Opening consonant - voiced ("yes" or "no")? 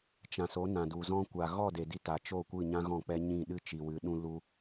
no